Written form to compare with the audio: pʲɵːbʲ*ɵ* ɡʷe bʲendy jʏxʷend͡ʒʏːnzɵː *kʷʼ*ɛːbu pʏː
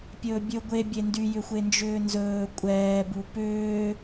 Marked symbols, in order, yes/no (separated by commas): yes, yes